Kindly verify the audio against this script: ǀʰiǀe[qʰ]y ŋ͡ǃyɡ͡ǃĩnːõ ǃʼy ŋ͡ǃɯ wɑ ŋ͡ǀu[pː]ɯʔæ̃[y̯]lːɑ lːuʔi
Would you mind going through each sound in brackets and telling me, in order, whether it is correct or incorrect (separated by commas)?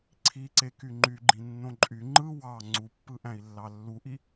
incorrect, correct, incorrect